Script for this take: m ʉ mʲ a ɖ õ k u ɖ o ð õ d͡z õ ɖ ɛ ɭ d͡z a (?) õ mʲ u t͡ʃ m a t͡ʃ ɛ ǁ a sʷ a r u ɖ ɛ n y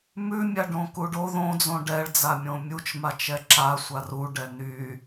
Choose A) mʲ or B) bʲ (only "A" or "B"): A